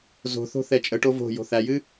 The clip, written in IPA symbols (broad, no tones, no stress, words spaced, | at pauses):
zo̤θo̤ θɛt͡ʃʼəʈo vo̤ jo̤θæjɨ